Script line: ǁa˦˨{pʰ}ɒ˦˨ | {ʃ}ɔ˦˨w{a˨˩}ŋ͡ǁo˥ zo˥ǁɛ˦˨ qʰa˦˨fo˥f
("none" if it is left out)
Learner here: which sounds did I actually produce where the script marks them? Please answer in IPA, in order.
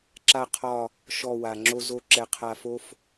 qʰ, ʃ, a˨˩

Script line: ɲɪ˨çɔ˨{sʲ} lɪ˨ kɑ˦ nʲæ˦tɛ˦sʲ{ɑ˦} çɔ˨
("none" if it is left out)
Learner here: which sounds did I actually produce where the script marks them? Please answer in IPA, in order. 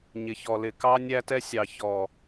none, ɑ˨

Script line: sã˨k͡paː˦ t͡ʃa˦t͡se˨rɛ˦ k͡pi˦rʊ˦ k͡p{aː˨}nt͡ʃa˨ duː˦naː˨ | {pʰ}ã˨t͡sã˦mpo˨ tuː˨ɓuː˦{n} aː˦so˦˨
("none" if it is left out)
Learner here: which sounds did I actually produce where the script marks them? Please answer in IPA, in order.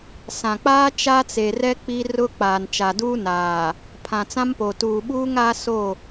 aː˨, pʰ, ŋ

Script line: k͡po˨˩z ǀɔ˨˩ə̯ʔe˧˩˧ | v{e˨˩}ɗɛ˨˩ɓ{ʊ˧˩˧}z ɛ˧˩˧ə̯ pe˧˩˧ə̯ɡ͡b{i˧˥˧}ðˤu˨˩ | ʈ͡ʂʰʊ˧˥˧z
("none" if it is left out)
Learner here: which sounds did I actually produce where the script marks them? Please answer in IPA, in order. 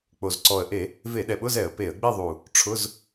e˧˩˧, ʊ˧˥˧, i˥˧

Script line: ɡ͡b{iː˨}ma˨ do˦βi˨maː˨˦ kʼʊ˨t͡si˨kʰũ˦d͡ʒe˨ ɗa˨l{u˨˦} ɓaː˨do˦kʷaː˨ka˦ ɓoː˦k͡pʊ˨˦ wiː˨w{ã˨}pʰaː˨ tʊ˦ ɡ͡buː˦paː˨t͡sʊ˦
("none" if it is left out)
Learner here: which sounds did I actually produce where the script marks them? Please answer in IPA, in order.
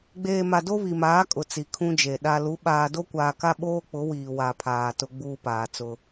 eː˨, u˨˦, a˨

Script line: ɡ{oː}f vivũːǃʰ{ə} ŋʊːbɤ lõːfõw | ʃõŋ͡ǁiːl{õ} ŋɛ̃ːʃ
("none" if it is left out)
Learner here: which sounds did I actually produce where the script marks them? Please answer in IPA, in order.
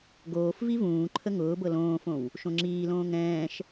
oː, ə, õː

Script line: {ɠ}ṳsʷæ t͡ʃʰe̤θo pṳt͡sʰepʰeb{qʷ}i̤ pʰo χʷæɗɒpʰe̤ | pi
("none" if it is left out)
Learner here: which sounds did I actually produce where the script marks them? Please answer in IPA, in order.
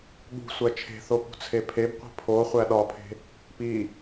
ɠ, qʷ

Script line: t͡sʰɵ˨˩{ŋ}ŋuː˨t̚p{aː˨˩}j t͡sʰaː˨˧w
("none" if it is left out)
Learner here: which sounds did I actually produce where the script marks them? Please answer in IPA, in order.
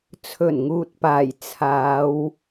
n, aː˨˩

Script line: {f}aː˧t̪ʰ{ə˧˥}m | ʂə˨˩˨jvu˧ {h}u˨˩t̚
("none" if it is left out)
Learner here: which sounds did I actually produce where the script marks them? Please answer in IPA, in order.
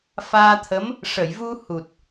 f, ə˧˥, h

